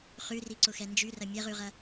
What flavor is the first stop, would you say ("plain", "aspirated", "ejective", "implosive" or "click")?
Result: click